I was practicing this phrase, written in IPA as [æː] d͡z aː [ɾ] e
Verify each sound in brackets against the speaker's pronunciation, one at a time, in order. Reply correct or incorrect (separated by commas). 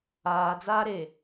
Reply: incorrect, correct